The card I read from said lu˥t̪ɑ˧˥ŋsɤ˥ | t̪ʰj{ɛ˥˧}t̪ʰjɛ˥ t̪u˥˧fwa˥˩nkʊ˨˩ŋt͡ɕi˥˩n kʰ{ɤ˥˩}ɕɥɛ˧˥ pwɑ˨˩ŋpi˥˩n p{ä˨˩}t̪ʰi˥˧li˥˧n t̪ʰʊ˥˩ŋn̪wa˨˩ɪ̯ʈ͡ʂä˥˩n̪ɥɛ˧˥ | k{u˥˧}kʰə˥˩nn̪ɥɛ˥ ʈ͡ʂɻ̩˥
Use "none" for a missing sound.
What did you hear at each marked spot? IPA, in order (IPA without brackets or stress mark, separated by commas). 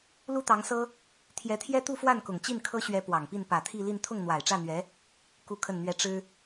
ɛ˧˥, ɤ˥, ä˨˩, u˥˧